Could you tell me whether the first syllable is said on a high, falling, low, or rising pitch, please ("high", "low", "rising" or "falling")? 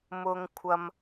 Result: high